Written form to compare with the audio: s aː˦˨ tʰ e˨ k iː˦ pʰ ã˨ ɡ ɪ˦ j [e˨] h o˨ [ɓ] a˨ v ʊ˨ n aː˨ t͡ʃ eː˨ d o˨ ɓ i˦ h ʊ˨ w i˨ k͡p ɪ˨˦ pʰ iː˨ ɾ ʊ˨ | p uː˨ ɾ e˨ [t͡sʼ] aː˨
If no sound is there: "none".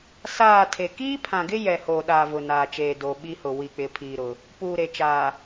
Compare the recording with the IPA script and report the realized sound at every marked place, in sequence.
ɛ˨, ɗ, t͡ʃ

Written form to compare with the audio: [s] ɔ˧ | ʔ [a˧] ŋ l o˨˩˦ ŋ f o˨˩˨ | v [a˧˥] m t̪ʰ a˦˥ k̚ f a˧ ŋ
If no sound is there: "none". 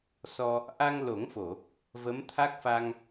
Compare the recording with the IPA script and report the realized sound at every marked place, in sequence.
s, a˧, ə˧˥

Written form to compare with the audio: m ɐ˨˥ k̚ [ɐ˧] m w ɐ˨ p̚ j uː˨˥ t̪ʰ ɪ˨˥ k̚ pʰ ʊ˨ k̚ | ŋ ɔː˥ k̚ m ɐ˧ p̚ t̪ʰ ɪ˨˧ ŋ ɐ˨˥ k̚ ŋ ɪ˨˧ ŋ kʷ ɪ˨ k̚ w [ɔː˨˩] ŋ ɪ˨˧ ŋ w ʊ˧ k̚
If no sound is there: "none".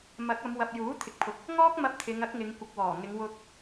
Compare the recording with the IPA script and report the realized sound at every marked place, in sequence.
ɐ˨˧, ɔː˨˩

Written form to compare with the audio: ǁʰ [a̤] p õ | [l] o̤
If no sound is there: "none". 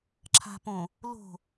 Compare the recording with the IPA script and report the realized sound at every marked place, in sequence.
a̤, l

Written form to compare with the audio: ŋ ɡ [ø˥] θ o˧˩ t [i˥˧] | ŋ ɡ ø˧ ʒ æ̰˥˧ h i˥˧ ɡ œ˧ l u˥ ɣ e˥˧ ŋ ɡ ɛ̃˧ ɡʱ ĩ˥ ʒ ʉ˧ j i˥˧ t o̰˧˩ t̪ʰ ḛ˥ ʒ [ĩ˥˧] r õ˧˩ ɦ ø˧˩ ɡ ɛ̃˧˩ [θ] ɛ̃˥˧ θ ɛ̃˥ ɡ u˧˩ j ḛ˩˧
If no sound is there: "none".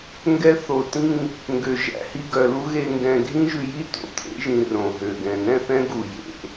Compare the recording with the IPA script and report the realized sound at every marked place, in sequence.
ɛ˥, ĩ˥˧, ĩ˧, n

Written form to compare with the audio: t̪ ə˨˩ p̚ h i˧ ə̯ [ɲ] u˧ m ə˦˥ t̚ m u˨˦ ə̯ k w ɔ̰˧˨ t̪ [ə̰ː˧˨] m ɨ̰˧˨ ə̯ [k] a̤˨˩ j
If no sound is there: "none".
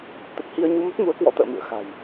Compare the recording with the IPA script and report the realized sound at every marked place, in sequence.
ɲ, ə̰ː˧˨, x

